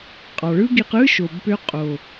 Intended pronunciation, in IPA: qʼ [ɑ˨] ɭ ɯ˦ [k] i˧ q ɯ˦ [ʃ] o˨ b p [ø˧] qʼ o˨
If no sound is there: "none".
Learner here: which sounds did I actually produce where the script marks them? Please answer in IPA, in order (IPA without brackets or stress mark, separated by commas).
ɑ˨, ɡ, ʃ, ø˧